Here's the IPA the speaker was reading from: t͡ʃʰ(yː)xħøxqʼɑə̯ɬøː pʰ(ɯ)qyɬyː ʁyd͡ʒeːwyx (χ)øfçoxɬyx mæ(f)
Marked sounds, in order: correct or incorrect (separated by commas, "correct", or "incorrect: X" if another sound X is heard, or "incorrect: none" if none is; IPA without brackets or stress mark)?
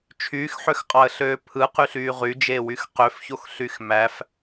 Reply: correct, correct, incorrect: q, correct